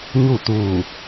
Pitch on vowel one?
falling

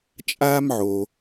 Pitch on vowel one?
high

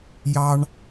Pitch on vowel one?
high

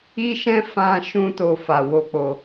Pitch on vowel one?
high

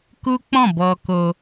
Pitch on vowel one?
high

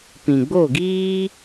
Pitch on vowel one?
low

